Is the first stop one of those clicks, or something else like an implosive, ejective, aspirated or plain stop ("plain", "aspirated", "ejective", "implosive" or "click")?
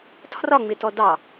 aspirated